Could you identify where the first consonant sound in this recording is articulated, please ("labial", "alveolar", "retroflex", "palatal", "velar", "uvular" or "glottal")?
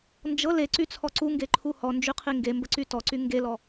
alveolar